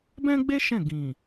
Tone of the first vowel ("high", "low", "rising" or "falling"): high